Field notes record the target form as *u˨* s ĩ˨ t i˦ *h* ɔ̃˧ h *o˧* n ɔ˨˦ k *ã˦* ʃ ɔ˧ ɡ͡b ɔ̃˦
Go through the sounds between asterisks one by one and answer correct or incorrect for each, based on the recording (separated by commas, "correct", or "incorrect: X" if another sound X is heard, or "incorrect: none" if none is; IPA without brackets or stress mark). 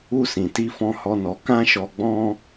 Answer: incorrect: u˦, incorrect: f, incorrect: ɔ˧, correct